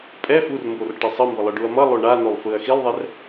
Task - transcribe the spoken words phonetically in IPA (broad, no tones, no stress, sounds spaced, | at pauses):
pʼ ɛ f u r m b o r ʈ e sˤ ʌ m b ɛ lˠ ɯ ɖ u ɐ̯ m ʌ lˠ o ɳ a n o lˠ f ɯ ɐ̯ x i lˠ ðˤ ɛ r